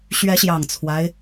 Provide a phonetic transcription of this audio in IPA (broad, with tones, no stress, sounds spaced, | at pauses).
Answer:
ɕ ɥ ɛ˨˦ ɕ j ɑ˨˩ ŋ t͡sʰ w a˦ ɪ̯